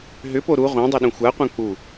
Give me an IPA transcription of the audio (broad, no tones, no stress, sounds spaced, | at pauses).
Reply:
ɦ ʏ p o ɾ u ʁʷ ã dˤ œ ɗ ũ xʷ a qʷ œ̃ k͡p u